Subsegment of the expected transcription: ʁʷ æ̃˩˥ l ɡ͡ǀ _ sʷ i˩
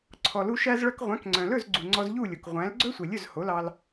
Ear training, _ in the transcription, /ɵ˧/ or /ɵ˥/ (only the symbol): ɵ˥